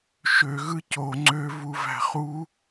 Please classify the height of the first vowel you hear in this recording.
mid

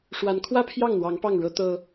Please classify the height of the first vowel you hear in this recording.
low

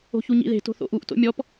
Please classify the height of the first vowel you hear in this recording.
mid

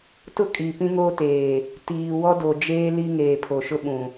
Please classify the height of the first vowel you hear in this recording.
high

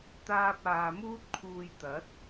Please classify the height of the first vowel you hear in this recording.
low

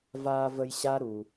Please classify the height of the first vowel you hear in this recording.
low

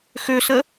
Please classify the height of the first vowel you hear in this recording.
mid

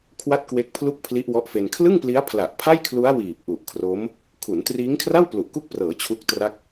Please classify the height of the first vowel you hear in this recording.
low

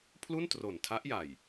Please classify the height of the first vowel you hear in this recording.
high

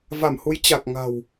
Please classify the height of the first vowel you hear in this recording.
low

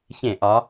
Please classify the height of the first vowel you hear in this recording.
mid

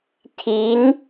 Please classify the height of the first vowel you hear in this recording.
high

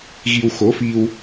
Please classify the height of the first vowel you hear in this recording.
high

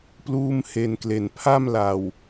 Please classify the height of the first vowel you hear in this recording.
high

